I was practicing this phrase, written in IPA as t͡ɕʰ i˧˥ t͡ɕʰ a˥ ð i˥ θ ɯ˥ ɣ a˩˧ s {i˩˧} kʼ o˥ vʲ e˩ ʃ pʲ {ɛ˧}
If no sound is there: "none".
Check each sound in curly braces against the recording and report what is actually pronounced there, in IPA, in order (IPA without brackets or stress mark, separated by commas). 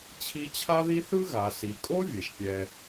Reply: i˩˧, ɛ˧